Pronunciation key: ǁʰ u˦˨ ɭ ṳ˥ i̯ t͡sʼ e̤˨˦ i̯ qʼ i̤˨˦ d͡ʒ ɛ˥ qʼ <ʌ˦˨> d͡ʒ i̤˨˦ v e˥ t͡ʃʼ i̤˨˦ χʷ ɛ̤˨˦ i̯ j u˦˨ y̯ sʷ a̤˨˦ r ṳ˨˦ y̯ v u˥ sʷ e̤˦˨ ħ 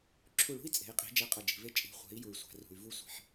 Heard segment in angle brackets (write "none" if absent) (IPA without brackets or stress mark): ʌ˦˨